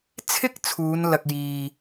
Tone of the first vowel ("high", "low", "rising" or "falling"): high